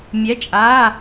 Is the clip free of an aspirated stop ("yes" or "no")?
yes